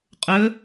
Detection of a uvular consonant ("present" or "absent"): present